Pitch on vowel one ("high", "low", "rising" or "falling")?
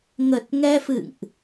low